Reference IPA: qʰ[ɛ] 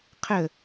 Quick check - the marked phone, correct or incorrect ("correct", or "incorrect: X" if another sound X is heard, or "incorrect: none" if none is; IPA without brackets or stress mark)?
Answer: incorrect: ə